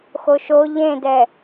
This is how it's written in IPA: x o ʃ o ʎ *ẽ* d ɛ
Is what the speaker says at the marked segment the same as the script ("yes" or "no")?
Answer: yes